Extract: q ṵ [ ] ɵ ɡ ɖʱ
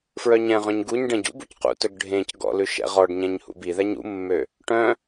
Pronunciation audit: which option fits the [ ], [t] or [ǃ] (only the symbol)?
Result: t